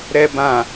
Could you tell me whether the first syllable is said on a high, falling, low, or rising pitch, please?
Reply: low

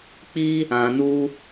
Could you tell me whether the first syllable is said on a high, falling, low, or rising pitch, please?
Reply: high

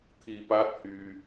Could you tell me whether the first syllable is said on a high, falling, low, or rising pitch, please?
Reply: low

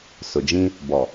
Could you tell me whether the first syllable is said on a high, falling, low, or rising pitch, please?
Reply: low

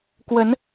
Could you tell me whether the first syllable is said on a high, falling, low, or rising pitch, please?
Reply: rising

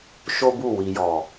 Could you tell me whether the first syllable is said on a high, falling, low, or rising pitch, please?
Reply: high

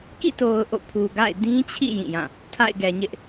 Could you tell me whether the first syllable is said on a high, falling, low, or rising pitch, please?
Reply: falling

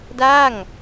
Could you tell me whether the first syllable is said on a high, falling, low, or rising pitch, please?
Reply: falling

